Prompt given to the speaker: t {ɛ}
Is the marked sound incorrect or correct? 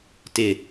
incorrect